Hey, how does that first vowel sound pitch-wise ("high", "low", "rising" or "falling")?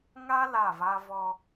high